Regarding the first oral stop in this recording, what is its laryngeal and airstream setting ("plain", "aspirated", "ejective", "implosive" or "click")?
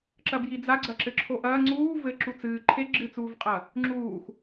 click